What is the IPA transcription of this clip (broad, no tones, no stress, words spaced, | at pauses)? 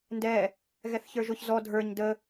ndɛ | ɣɛθçə˞ʒʊç zɔ dʱə˞ɲ də